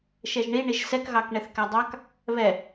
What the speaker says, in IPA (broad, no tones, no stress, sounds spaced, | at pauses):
ʃ ɛ ʒ ɳ i ɳ i ʒ s ɛ k ɣ ɑ k ɳ ɛ θ k æ dˤ ɑ k | β ɛ